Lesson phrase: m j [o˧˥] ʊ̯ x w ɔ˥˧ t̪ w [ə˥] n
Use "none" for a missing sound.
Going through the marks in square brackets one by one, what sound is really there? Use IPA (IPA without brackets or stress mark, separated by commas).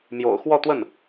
o̰˨˩, ə˥˩